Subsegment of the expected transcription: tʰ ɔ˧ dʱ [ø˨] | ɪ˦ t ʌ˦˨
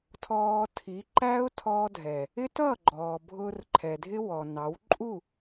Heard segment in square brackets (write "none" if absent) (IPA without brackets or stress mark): ɛ˨